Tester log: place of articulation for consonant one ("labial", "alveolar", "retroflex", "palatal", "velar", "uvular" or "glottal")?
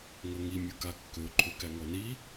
velar